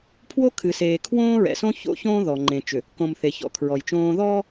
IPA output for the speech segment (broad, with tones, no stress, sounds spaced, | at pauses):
pʰ w o˦ kʰ ɨ˨ s eː˨ kʰ w õː˦ ɹ ɛ̰˨ s õ˦ ç o̰˦ ç õː˦ ð ɔ˨ ŋ͡ǃ ẽ˨ t͡ʃ ʏ˨ | k õ˨ m θ e˨ ç ɔ̰˨ kʰ ɹ ɔ˨ j t͡ʃ õː˦ ð ɔ˦